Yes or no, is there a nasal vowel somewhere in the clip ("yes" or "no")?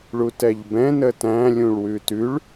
yes